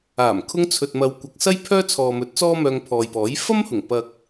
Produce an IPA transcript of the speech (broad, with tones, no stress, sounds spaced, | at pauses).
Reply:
aː˨˩ m kʰ ʊ˧ ŋ t͡sʰ ɵ˨ t̚ m ɐ˨˧ w kʷ ɐ˨ k̚ s ɐ˥ j pʰ œː˥ t͡sʰ ɔː˨ m ɵ˨˥ t̚ t͡s ɔː˥ m œː˧ ŋ pʰ ɔː˨ j p ɔː˨˥ j f ɐ˥ m h ʊ˨˩ ŋ p ɐ˨ k̚